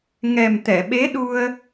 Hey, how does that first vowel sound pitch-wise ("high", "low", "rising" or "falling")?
low